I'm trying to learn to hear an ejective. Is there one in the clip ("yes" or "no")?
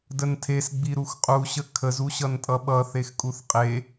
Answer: yes